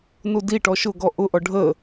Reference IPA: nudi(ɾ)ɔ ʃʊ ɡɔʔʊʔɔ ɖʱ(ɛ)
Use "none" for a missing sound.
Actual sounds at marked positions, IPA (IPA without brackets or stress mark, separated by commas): ʈ, ə